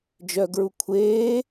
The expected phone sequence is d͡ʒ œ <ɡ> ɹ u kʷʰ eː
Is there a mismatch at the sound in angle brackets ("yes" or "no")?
no